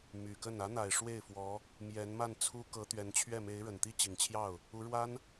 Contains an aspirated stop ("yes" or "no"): yes